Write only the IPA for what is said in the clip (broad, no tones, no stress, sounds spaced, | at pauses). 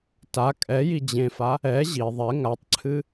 t a kʼ ɛ j i d͡ʑ ẽ f a | ɛ ʑ i ðˤ ɛ ŋ a tˤ ǀʰ ɨ